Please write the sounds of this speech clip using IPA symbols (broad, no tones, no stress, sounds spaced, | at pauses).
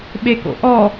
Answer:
ɓ e k o̰ ʔ ɔ